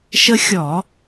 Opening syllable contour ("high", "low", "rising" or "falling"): high